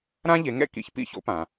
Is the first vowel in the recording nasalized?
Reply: yes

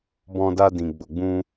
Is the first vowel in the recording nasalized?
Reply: yes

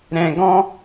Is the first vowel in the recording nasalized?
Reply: yes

